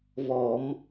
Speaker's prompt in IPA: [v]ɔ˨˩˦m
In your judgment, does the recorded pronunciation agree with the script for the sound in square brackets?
yes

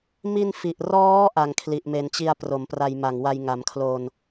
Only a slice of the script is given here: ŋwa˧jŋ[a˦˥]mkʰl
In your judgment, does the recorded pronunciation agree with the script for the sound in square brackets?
no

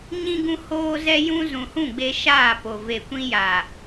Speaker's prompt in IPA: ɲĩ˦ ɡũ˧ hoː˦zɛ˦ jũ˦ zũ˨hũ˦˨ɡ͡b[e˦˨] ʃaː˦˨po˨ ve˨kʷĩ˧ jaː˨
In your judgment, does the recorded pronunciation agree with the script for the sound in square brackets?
no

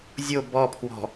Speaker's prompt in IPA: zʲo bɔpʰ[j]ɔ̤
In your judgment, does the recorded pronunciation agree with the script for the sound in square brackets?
no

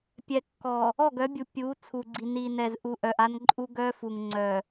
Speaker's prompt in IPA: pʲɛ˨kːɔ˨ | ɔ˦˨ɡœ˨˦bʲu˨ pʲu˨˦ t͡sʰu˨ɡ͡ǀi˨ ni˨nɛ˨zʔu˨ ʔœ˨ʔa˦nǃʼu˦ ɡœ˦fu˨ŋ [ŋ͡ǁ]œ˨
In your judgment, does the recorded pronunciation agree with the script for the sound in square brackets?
no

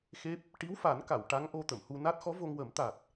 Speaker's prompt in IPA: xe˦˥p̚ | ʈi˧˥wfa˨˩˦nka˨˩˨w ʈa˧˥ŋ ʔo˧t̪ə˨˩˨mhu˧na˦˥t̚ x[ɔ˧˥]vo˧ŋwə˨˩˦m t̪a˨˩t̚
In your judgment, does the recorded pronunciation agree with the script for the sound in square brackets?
yes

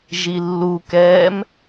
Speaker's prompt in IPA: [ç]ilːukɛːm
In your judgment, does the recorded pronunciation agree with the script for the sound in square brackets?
no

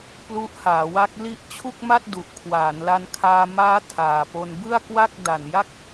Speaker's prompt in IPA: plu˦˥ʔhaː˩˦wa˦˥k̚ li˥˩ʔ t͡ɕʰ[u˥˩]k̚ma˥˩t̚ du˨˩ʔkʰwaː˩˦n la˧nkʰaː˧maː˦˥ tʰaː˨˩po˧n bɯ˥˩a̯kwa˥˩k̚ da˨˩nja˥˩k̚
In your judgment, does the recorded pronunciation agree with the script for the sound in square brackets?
yes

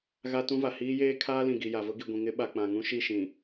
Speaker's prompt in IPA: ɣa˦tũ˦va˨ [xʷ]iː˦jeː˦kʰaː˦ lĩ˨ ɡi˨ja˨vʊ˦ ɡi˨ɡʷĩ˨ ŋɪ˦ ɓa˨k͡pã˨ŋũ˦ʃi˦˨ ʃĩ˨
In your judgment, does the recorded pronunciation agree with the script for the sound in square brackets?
no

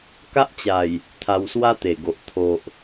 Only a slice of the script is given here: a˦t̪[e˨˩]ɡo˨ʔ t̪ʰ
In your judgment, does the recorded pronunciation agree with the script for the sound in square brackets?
yes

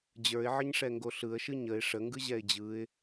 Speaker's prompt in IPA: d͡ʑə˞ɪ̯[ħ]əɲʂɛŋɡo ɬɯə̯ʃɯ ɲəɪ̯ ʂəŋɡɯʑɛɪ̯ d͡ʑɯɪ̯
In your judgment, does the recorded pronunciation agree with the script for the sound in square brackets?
no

